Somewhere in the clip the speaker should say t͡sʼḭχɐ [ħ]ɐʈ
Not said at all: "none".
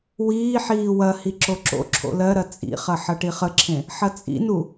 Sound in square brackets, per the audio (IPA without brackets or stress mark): ħ